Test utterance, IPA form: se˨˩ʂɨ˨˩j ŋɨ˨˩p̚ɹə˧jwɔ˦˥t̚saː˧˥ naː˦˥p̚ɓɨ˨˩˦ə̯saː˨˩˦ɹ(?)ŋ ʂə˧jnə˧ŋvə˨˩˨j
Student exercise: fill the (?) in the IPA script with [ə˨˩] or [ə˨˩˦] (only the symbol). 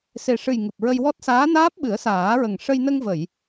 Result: ə˨˩